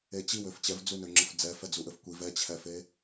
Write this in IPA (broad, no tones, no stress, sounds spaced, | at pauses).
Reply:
e t͡ɕ i w ø f t͡ɕ ɛ v d͡z u n ø ŋ͡ǁ ɘ f d͡z ɛ f ɛ d͡z u ʔ ɘ f kʷ i v ɛ t͡ɕʰ ɛ f e